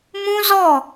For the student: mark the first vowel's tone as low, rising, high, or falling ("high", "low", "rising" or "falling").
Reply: high